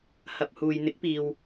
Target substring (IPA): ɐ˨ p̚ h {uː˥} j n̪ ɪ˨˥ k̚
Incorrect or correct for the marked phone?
incorrect: uː˨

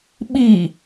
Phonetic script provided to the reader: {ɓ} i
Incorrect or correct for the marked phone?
correct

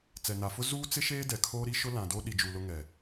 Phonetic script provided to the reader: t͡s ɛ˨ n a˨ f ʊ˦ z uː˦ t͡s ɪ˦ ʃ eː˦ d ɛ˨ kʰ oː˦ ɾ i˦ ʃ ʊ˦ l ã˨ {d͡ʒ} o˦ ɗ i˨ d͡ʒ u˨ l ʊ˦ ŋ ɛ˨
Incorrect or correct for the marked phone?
incorrect: d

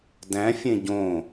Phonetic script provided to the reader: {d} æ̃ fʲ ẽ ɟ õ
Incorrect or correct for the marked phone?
correct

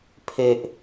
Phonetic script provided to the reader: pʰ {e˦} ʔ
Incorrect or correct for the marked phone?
correct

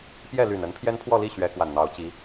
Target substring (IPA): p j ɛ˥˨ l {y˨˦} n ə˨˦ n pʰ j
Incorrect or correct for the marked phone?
incorrect: y˨˩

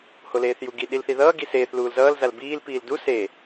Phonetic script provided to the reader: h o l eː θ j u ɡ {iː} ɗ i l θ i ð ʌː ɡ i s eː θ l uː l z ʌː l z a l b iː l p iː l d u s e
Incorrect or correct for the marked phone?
incorrect: i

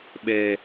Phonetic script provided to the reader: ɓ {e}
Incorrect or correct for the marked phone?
correct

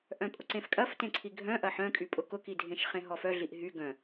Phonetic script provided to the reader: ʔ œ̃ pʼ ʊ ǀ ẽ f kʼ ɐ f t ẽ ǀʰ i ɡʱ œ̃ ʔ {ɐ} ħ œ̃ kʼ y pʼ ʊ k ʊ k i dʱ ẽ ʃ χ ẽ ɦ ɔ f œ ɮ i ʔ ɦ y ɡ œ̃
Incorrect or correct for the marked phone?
correct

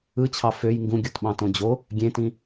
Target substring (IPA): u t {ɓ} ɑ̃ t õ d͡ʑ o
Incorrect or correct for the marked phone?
correct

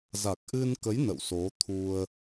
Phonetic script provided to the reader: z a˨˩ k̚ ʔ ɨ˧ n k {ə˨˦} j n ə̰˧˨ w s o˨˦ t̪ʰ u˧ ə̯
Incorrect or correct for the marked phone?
correct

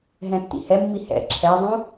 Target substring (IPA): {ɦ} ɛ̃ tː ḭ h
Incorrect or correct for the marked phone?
correct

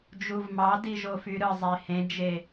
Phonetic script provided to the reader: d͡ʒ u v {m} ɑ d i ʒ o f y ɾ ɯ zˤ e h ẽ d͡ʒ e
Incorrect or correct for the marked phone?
correct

